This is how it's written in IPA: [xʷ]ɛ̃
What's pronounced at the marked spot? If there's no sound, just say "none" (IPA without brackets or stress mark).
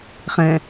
χ